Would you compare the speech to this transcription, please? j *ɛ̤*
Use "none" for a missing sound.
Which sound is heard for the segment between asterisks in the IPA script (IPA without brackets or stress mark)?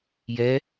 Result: ɛ